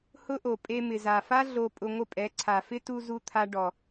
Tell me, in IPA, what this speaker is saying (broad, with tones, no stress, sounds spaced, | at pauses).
h ʊ˦ ʔ o˨ pʼ e˧ m ɪ˨ z a˨ f a˦ ɮ o˧ pʼ ʊ˧ ŋʷ ɪ˦˨ pʼ ɛ˨˦ ǀʰ a˨ f ɪ˦ t u˧ z u˧ t̪ʰ a˧ ɖ ɔ˨